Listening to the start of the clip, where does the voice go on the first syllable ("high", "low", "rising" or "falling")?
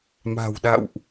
low